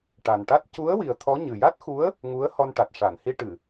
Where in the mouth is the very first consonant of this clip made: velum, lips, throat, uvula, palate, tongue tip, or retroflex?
retroflex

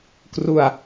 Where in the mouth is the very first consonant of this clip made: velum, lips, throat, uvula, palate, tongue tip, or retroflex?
velum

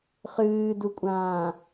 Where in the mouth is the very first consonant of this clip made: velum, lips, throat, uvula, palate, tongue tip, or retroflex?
uvula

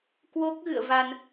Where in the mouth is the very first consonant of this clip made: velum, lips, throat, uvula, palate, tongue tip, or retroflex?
velum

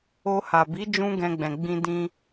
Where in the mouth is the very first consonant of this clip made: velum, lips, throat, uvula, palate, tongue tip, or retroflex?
throat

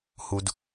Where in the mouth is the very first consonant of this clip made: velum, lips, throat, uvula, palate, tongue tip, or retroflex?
throat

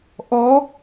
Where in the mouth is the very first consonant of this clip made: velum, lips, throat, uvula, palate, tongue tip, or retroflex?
throat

